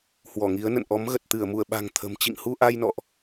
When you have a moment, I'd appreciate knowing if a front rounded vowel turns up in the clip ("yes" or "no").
no